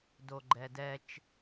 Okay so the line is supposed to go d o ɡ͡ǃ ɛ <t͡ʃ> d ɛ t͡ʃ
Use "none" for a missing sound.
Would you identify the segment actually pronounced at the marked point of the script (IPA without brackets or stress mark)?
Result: none